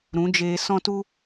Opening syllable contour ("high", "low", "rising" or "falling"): rising